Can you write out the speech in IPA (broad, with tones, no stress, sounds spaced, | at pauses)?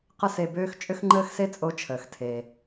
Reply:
q ə˥ s e˧ b øː˥ x t͡ʃʼ ʏ˥ x ŋ͡ǃ əː˥ x s e˥ t͡sʼ o˧ t͡ʃʰ əː˩ x tʰ e˩